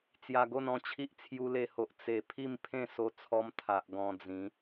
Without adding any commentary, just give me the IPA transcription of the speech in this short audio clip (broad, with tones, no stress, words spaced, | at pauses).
t͡sja˨˩ɡo˥˧nɔ̃˥˧t͡ɕʰi˦ʔ t͡sʰju˧le˧ho˨ʔ t͡se˨˩ pʰi˥˧mpʰẽ˥˧so˧t͡sʰɔ˧m t̪ʰa˨ʔ ɡɔ̃˧d͡zĩ˨˦